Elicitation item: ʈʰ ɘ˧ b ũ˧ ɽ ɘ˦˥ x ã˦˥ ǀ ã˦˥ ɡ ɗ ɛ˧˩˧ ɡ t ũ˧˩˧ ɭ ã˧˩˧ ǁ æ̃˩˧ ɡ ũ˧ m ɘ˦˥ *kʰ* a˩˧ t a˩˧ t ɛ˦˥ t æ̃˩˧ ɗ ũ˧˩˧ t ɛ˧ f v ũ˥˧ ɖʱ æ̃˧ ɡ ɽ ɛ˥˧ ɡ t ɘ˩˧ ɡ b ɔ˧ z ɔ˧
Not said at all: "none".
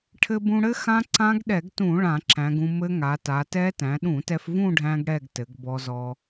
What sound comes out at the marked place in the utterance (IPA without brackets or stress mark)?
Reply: ŋ